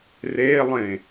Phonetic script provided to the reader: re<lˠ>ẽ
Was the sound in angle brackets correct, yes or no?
yes